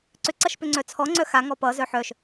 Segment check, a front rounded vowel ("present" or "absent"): present